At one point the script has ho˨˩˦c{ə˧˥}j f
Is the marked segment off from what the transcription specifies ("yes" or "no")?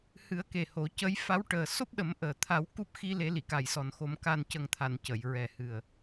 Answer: no